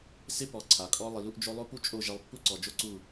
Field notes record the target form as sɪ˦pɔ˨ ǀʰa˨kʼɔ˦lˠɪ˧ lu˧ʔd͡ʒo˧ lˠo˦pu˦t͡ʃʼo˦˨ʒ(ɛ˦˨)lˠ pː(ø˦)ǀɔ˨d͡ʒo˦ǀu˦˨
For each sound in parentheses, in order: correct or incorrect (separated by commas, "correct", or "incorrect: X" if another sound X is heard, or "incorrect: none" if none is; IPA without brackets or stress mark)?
incorrect: ɛ˧, incorrect: u˦